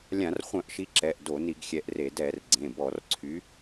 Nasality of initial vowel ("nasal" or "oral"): nasal